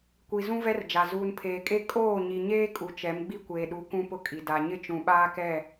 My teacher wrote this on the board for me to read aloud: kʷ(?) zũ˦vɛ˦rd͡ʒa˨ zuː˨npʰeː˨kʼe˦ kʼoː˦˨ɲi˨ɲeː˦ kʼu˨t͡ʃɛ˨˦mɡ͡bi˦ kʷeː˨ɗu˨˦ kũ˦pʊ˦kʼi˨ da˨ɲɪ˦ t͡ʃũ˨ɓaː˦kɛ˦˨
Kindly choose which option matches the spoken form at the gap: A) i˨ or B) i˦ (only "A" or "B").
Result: A